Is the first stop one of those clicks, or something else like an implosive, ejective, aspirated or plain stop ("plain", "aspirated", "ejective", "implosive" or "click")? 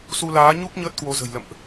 plain